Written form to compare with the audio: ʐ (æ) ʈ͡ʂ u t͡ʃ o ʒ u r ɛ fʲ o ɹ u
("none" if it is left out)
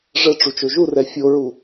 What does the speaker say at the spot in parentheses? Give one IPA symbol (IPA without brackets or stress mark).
ə